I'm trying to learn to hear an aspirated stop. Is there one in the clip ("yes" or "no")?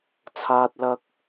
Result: yes